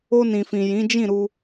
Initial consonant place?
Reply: alveolar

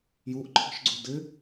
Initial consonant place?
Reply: palatal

